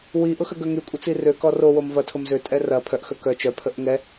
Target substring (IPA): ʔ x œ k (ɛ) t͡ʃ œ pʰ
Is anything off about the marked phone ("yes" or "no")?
yes